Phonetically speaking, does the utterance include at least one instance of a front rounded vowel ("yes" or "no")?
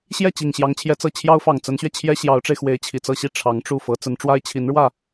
no